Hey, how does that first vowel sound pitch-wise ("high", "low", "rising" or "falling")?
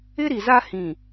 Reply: high